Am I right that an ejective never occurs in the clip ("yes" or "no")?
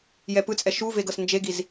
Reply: no